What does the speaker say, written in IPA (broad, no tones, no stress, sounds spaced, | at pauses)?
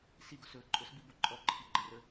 s i ɡ o s ɵ ǃʼ ɵ s b i b o ǃʼ ɔ ǃʰ i ɡ͡ǃ ə r ə